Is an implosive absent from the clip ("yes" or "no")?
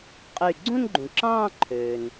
yes